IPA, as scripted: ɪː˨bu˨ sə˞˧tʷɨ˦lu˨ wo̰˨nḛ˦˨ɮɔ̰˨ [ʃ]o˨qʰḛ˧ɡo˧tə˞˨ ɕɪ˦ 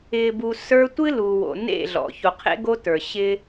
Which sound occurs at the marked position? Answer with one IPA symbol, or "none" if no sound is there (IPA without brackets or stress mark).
ç